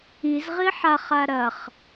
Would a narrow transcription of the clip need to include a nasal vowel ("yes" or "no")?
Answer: no